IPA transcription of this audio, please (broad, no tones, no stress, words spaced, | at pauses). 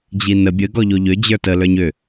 d͡ʑinə bʲə ɡɔʎoʎʏ d͡ʑə˞tə lə˞ɲʏ